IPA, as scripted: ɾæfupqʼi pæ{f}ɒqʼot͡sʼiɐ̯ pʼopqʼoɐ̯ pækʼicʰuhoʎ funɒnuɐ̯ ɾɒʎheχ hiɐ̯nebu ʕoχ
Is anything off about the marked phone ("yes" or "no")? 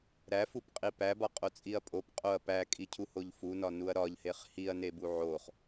yes